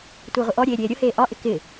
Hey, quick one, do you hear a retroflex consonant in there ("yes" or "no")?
no